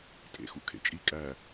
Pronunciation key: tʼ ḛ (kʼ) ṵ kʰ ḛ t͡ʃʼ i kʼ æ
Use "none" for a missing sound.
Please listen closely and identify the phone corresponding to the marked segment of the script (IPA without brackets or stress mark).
x